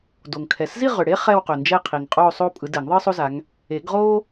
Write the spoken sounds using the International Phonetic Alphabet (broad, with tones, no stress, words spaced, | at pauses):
do˩ŋkʰɛ˩s zi˥˧ʁʏ˩ɽe˥ χɛ˥˧wqʏ˩nd͡ʒɛ˥˧ qʰi˩ŋ qʼoː˥˧sˤo˥ pʼɯ˨˦dɛ˨˩˦ŋ ðˤɯː˥sˤo˥za˨˦ŋ | e˨˩˦ɡʁoː˥